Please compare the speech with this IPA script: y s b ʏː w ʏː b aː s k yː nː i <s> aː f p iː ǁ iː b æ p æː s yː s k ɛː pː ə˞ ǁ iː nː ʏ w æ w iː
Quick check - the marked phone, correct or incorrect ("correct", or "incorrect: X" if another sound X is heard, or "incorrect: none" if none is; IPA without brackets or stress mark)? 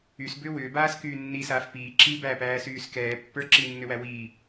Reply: correct